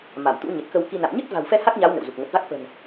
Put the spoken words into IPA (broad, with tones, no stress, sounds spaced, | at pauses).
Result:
m a˧˩ m t̪ ṵ˧˥ ɲ ə˨˩ t̚ k ə˧ w k i˧ n a̰˧˨ m ɲ ɨ˦˥ t̚ v a̤˨˩ w f ɛ˧ h a˦˥ k̚ ɲ a˨˦ w n ə̰˧˨ w z u˨˩ k̚ ŋ ə˨˩ t̚ v a˦˥ k̚ f ə̤˨˩ n